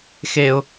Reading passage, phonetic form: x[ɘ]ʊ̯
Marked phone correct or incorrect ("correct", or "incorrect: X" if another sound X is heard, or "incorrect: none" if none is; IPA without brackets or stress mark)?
incorrect: e